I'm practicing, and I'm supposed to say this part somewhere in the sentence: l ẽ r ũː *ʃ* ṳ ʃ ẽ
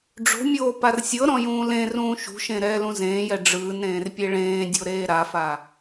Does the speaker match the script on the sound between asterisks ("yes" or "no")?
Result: yes